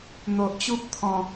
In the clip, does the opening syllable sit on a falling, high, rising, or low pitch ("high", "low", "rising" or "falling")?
low